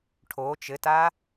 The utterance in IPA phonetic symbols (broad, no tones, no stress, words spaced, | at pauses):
ʈʰo t͡ʃɘta